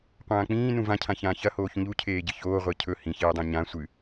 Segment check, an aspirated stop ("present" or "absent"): present